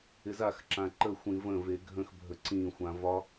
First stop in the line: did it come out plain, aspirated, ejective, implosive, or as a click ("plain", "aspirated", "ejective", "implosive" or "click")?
click